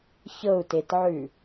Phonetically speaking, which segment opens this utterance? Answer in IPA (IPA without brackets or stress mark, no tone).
ç